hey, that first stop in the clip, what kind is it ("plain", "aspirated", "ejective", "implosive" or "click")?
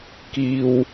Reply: plain